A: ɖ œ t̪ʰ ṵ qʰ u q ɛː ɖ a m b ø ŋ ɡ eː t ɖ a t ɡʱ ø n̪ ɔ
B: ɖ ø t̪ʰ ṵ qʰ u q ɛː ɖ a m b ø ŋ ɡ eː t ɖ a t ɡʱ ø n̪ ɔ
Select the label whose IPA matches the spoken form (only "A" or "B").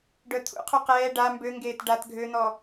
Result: A